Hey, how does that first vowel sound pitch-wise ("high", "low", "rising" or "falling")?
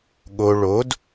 low